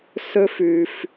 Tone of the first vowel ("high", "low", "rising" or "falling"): high